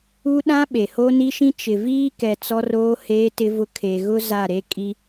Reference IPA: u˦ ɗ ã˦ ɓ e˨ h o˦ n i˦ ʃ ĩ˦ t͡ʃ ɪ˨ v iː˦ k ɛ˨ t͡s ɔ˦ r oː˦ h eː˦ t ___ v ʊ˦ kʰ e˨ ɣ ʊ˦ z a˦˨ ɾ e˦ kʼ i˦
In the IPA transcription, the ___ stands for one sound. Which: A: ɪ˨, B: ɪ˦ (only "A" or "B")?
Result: B